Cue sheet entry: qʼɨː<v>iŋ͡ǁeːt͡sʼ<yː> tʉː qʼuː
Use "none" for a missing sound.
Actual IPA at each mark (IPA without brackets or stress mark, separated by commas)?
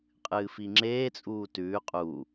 f, uː